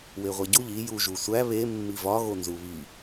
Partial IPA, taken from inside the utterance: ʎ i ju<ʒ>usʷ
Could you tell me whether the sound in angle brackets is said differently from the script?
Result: no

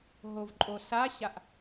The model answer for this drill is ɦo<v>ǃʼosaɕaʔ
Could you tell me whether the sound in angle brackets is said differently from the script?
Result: no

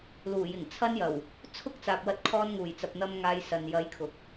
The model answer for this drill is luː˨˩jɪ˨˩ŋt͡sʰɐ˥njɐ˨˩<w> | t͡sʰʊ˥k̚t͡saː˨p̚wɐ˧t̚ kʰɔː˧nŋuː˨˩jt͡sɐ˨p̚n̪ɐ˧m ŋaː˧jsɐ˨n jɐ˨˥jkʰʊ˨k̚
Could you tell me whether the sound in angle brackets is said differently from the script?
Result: no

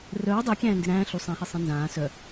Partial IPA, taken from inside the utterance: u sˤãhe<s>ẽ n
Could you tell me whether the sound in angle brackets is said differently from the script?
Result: yes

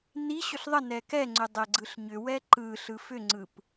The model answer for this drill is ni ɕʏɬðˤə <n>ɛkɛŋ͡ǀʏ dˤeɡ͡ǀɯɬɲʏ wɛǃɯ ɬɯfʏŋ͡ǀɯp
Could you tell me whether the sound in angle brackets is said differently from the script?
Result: no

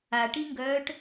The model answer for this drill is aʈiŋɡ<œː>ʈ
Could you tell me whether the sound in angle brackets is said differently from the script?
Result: no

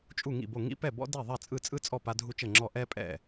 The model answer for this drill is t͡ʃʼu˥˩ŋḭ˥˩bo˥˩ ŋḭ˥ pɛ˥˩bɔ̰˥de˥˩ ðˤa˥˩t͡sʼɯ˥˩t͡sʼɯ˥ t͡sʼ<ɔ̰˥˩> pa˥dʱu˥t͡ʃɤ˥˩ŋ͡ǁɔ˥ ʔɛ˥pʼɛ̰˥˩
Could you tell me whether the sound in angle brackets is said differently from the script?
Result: yes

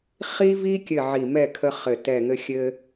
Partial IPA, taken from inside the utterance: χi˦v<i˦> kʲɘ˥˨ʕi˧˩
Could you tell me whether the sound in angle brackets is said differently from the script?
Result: no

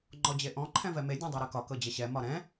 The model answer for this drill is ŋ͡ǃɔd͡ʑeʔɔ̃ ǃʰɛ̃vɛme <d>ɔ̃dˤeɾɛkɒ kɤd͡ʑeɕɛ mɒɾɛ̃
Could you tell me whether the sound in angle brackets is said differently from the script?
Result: yes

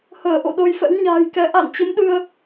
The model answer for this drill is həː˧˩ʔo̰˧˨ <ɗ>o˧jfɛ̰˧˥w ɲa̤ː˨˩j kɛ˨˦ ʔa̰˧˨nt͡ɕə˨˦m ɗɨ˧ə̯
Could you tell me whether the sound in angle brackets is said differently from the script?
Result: no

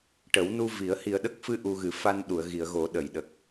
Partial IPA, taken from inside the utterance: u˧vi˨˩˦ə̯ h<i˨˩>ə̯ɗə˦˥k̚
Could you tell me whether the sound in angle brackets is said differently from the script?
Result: no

